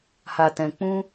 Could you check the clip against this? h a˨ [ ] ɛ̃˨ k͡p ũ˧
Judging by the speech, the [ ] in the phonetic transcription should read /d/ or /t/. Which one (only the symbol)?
t